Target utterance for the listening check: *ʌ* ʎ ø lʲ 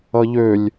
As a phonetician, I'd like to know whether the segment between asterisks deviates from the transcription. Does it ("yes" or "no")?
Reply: no